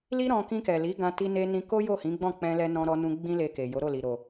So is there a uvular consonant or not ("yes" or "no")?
no